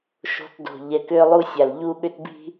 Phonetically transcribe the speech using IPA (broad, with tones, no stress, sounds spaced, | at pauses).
ʃ o̤˦ t d o̤˨ ʎ ɛ˨ k ʏː˦ lˠ u˦ sʲ a˨ l ʎ u˦ ɠ ʏ˦ t b i̤˦